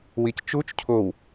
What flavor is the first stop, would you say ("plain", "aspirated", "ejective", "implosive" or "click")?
plain